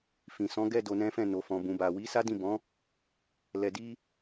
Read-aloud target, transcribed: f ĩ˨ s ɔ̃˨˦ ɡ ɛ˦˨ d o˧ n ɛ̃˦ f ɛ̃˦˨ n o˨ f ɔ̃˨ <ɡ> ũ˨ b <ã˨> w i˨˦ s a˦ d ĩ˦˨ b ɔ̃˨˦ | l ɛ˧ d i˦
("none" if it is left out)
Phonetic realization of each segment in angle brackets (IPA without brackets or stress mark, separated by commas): b, a˨